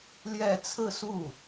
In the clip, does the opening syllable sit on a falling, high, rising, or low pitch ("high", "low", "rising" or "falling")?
falling